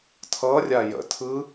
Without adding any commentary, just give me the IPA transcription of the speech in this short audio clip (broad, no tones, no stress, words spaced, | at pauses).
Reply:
tʰʌrʲa jə̰ tʰɯ